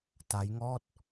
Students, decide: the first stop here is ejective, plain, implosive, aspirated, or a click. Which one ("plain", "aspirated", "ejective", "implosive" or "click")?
plain